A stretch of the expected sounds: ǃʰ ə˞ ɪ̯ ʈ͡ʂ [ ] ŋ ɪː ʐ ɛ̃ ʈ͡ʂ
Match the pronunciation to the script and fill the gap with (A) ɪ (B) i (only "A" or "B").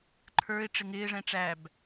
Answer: A